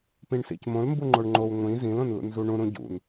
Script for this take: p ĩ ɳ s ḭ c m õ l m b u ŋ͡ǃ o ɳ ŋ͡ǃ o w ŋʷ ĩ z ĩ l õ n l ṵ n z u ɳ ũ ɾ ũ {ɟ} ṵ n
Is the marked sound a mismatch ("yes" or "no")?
no